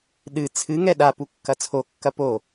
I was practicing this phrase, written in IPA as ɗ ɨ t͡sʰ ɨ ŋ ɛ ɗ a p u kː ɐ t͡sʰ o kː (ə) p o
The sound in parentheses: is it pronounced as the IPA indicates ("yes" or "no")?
no